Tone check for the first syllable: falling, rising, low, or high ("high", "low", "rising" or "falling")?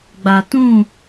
low